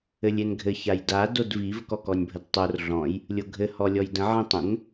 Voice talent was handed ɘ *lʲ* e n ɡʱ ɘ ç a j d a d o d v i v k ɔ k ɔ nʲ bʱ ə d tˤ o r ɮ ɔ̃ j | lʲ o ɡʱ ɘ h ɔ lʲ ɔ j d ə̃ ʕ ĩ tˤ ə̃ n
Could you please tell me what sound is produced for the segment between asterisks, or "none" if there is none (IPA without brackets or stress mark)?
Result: lʲ